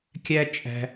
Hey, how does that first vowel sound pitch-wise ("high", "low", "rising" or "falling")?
high